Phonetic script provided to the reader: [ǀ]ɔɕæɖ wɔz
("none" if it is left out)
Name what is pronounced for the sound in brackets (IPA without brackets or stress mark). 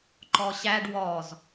ǃ